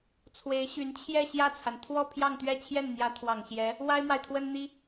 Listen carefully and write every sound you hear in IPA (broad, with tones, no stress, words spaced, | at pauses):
t͡sʰwe˧˥ɪ̯ɕy˧˥n t͡ɕʰjɛ˥˧ ɕjä˥˩t͡sʰa˩n t̪ʰwɔ˥˧ pʰjɑ˥˧ŋt̪ɥɛ˥˧ t͡ɕʰjɛ˥˩nn̪jä˧˥ t̪ʰwɑ˨˩ŋɕjɛ˧˥ | wa˥ɪ̯mwa˨ɪ̯t̪ʰwə˥nn̪i˥